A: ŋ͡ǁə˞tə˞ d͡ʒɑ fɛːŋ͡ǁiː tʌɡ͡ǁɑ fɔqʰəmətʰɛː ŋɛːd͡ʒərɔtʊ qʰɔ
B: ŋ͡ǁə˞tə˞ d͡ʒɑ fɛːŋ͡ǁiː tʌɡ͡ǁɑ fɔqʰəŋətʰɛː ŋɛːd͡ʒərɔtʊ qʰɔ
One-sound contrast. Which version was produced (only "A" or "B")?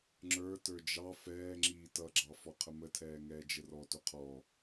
A